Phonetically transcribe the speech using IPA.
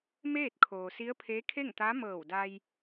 m eː˥˨ t̚ kʰ oː˩ s i˧˥ ə̯ pʰ eː˧˥ kʰ e˥˨ ŋ t̪ a˧˥ m ɤː˧˩ w d a˧ j

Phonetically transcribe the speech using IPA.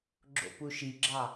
ɡ͡ǁ o̰ p u ʃ i ɡ͡ǁ ɑ

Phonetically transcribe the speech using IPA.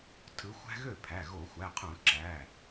tʰ ɯ˨˦ xʷ æ̤˦ ɣ ø˥˩ pʰ æ˩˧˩ ɣ o˧˩˧ xʷ æ˩˧˩ qʰ ũ˧˩˧ ǁ æ˩˧˩

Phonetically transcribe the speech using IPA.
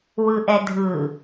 w ɯ ʔ ɛ dʱ ɯ

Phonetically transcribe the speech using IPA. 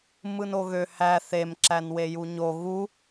m ɯ n o ɣ ø h æ θ e m ǁ æ n w e j u ɲ o ɣ u

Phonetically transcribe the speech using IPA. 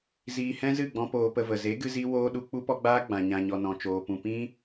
z iː˧ h ɛ̃˦ z ɨ˦˨ ɡ͡b ɔ̃˧ p oː˧ p ə˧ v ə˨ z e˨˦ ɡ ɨ˧ z i˧ w oː˧ ɗ u˦ k͡p u˦ p ɔ˦ ɡ͡b aː˦ ɡ͡b ã˨ ɲ ã˨ ɲ ɔ˨ n ɔ̃˧ t͡ʃ oː˧ p ũ˨ p ĩ˧

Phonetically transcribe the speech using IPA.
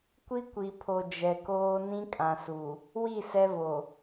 kʷ i˦ kʷ i˨ pʰ o˨ d͡ʒ ɛ˨ k oː˦ n ĩ˦ kʼ ã˨ s u˨ | w i˦˨ s ɛ˦ v o˨

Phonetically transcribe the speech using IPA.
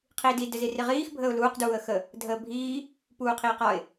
qʰ iː d i d ɘ z i r i ʁ iː x bʱ əː ʊ̯ l uː q d uː ə̯ x ə | dʱ əː bʱ iː | p uː qʰ iː q ɒ ɪ̯

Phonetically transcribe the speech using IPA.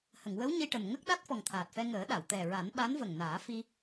h ə˨˩˨ ŋ w ə˧˥ w ɲ i˧ ʈ ə˨˩ m ŋ ə˦˥ k̚ ɗ a˦˥ t̚ f ɔ˨˩ ŋ t̪ʰ aː˨˩ t̚ f ɛ˧ ŋ əː˨˩˦ ɗ a˨˩˨ w t̪ ɛ˨˩ ɹ a˨˩˦ n ɓ a˧˥ n v ə˨˩ ŋ n aː˨˩˦ f i˧

